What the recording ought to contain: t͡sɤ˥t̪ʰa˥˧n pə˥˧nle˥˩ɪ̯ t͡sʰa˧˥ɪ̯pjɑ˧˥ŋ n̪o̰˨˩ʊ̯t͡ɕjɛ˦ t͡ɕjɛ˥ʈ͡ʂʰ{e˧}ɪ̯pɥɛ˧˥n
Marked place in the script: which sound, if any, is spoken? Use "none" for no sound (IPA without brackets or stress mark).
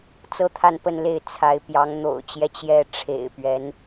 ḛ˨˩